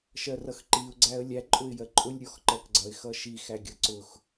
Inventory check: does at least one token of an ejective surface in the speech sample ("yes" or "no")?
yes